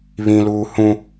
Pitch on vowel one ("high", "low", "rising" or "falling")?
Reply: high